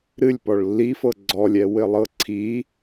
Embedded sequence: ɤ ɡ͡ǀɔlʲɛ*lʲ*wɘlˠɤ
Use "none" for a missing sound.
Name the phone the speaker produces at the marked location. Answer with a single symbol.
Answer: none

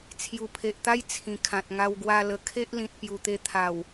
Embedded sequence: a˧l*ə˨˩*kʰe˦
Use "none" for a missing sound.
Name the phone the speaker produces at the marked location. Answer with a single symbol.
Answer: ə˨˩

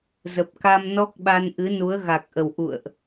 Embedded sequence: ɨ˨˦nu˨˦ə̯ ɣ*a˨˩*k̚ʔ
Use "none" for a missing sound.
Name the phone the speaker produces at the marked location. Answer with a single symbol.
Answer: a˨˩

